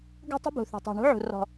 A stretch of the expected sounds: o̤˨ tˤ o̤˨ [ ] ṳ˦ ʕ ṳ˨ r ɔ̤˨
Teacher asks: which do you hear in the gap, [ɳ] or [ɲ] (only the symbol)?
ɳ